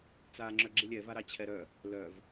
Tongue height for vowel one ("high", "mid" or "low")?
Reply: low